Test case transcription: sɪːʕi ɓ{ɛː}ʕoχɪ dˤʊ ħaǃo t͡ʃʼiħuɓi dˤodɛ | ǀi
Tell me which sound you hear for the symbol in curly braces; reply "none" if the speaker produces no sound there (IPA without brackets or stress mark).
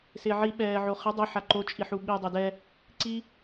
ɛː